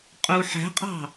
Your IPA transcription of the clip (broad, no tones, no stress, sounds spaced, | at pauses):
qʼ u ħ æ̤ qʼ ɑ̤